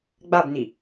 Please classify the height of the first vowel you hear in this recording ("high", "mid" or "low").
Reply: low